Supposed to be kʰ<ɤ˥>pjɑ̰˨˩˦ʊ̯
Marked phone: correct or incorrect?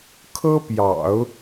correct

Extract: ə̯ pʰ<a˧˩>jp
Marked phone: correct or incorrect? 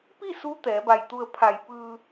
correct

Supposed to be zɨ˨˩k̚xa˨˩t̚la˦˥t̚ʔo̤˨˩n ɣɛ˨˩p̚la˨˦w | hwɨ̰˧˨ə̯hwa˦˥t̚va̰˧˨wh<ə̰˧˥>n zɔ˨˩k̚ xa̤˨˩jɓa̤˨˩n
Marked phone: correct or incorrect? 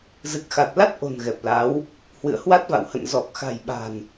incorrect: ə̰˧˨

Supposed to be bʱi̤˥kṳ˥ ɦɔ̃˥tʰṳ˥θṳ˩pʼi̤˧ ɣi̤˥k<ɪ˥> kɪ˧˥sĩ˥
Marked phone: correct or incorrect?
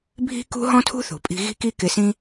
incorrect: i˥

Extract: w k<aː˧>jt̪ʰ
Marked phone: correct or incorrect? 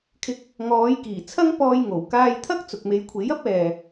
correct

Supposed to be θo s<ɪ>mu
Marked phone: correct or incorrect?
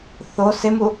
correct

